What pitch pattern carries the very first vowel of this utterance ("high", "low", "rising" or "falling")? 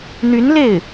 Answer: rising